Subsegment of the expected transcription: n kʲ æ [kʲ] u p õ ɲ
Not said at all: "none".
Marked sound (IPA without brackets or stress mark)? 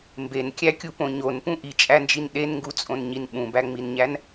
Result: kʲ